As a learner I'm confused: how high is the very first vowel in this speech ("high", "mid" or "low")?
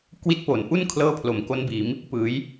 high